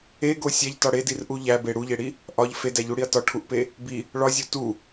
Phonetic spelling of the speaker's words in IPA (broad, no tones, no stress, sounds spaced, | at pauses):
e ɡ o sʲ æ ʎ t ɒ ɽ e d i r ʔ u ʎ æ b e ɽ u ʎ e ɽ i | ʔ ɒ ʎ f e d æ ʎ u ɽ i ɐ̯ t ɒ ʈʰ u ʔ p e | b i | ɭ ɒ zʲ o t u